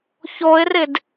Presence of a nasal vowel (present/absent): absent